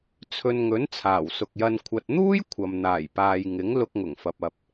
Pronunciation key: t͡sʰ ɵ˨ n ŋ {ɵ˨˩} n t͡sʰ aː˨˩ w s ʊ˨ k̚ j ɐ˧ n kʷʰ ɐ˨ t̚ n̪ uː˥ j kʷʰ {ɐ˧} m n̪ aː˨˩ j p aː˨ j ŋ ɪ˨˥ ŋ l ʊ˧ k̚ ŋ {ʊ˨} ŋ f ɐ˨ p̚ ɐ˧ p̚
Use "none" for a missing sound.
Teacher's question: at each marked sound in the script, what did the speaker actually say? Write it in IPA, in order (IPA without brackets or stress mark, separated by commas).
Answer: ɵ˨˥, ɐ˨, ʊ˨˩